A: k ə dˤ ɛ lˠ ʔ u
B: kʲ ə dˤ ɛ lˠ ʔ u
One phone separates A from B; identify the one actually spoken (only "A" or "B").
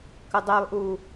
A